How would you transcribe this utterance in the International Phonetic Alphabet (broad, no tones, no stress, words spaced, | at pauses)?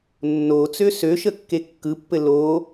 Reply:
nːo t͡søsøʃə kːekːɯpːɘ lo